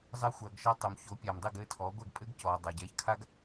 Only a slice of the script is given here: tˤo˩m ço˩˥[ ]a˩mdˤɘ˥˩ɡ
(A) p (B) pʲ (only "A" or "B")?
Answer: B